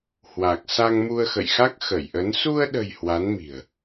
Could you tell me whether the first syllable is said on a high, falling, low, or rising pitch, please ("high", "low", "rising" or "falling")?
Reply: low